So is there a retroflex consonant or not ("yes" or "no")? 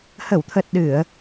no